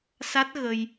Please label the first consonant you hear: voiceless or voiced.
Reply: voiceless